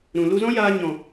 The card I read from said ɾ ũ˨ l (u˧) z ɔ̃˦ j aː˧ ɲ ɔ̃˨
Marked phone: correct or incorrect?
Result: correct